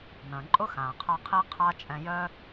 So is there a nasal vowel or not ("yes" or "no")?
yes